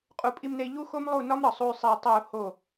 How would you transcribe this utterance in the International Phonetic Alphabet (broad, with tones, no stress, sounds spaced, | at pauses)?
qʼ u˩˥ pʼ i˧ m n e˧ i̯ ʎ u˥ x o˥ m lˠ u˥˩ n ɒ˥ m ɾ ɒ˩ sˤ u˧ y̯ sˤ e˧ i̯ tˤ o˥˩ u̯ h o˥˩